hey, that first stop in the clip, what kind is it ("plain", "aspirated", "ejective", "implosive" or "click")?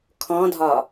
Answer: aspirated